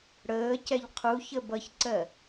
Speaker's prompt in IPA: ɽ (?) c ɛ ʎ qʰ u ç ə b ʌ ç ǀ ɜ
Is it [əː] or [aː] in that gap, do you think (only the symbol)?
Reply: əː